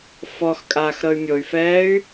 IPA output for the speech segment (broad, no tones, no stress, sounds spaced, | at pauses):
f ɔ x kʼ aː x ɾ ɤ y̯ mʲ o y̯ f ɛː y̯